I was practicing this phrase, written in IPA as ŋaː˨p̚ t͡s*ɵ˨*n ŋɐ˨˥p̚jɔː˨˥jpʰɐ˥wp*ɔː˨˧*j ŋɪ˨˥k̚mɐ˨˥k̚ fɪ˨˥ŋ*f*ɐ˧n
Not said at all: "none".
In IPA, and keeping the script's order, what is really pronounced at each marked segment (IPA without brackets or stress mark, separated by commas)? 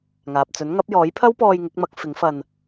ɵ˨˥, ɔː˧, f